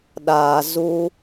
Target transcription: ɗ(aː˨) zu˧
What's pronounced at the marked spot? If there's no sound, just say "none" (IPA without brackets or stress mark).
aː˨